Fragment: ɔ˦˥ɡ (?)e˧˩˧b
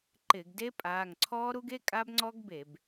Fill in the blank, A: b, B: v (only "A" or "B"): A